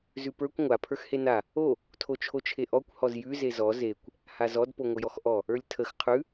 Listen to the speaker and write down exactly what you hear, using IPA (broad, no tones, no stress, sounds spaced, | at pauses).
z ʉ p ə˞ kʷ ŋʷ a pʰ ə˞ x h e n a | o | tʰ o t͡ʃʰ o t͡ʃʰ e ʔ ɔ kʷ h ɔ z j ʉ z e z ɔ z e kʷ | h a z ɔ d p o ŋʷ ə j ɔ x ʔ ɔ | ə˞ lʲ tʰ ə x qʰ ʉ